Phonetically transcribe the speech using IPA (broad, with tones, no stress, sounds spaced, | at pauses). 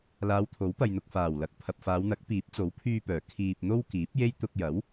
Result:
l aː˨˧ w t̪ʰ o˨˥ w p ɐ˨ j n̪ ʊ˨ k̚ f aː˨˩ w l ɐ˨ k̚ pʰ ɐ˨ p̚ f aː˨˧ w n̪ ɐ˨˥ k̚ p iː˨˥ p̚ t͡s o˨˥ w pʰ yː˧ p œː˨˩ kʰ iː˧ p̚ n̪ o˥ w k iː˨˥ p̚ j e˥ j t̪ ʊ˧ k̚ j ɐ˨˥ w